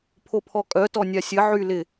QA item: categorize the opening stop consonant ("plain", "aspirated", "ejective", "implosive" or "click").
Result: aspirated